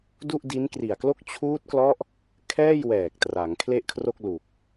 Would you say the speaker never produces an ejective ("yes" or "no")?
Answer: yes